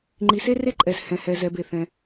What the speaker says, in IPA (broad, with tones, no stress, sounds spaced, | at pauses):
ŋ͡ǃ i˩ s e˥ r e˥ ǃʼ ɛ˩ z h ɛ̃˩ h ɛ˩ z ɛ˩ b e˩ θ ɛ̃˩